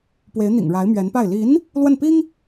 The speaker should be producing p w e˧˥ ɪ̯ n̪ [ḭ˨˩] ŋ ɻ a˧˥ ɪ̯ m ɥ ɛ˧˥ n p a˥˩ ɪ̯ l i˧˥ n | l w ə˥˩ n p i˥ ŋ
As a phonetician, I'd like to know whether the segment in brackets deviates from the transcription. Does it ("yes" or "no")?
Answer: no